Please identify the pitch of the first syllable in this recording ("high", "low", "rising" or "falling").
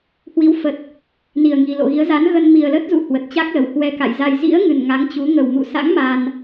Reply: rising